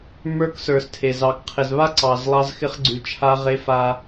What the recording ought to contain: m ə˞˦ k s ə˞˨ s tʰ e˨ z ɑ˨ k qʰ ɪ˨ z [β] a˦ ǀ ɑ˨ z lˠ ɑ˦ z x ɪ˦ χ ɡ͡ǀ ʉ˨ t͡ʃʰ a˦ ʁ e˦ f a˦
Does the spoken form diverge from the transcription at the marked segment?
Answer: no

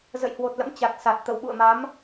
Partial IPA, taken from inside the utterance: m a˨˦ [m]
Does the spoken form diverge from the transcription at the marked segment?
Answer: no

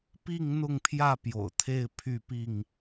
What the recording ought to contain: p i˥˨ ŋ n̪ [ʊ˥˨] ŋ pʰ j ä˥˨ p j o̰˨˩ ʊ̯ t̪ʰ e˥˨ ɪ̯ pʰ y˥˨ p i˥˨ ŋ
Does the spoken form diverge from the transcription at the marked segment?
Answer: no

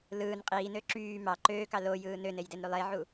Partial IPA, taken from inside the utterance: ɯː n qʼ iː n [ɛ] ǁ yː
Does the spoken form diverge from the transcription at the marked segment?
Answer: yes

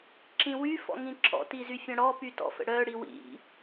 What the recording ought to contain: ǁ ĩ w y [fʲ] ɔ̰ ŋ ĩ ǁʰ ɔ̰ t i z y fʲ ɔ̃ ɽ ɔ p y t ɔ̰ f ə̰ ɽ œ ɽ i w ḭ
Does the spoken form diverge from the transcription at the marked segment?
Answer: yes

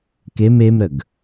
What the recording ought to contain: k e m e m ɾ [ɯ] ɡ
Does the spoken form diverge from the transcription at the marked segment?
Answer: yes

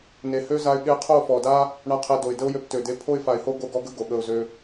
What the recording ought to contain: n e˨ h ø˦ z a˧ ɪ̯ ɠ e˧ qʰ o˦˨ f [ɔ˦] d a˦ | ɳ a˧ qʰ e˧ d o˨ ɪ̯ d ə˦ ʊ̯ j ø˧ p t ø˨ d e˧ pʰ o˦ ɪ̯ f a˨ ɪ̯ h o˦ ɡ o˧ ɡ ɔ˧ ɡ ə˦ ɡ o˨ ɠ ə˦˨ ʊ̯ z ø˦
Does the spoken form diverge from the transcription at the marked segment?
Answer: yes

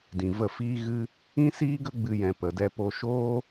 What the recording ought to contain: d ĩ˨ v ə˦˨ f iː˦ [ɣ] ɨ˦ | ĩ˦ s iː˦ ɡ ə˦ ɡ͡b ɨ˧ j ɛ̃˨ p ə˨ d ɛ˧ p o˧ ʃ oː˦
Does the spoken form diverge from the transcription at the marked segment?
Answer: no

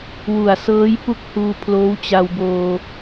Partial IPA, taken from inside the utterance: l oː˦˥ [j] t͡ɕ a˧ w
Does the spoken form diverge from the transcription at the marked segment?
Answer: yes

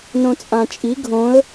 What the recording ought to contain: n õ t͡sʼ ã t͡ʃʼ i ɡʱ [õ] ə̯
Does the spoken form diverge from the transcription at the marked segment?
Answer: no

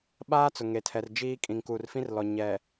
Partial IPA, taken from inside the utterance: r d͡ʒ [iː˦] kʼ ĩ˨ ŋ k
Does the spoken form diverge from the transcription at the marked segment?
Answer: no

